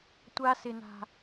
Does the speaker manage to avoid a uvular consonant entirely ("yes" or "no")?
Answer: yes